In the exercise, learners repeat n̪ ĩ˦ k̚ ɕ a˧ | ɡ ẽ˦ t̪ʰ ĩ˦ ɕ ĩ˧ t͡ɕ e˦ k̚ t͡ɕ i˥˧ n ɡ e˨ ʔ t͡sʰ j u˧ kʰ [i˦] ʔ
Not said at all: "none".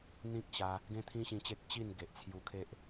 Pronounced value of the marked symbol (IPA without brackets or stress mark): e˦